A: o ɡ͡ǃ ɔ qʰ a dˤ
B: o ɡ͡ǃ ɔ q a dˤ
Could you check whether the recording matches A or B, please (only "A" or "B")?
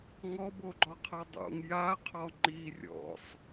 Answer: A